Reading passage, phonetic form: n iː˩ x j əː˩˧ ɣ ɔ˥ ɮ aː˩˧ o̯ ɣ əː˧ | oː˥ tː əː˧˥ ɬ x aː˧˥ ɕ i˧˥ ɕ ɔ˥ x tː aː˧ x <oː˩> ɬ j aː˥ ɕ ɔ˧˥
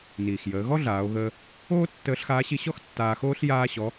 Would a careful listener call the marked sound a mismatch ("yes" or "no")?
yes